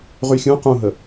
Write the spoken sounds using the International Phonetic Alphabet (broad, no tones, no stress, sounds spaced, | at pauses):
ʁ y xʲ ũ q ũ ɦ ə